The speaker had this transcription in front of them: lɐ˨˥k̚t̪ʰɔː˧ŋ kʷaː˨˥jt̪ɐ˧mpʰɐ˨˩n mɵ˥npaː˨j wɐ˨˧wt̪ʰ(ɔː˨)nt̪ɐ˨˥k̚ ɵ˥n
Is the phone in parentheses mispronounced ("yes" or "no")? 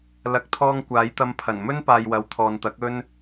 no